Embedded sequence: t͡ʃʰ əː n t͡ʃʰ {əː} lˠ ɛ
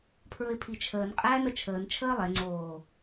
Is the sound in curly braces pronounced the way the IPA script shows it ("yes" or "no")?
yes